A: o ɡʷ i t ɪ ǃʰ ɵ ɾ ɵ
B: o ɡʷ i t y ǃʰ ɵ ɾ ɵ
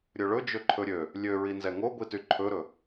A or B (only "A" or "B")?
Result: B